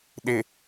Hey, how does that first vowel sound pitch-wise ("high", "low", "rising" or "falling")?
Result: low